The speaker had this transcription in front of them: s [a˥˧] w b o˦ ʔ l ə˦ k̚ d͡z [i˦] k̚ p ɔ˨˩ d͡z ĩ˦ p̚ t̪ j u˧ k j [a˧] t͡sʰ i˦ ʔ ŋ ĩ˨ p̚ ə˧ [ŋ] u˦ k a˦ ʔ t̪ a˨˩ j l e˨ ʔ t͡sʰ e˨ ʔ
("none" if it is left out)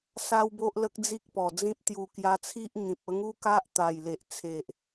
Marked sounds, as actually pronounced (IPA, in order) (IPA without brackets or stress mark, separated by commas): a˦, i˦, a˧, ŋ